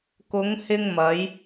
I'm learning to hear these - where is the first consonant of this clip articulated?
velum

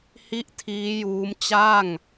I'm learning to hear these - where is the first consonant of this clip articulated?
throat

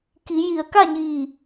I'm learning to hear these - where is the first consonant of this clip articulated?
velum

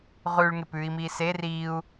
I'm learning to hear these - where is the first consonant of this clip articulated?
uvula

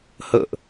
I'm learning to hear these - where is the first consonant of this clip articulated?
throat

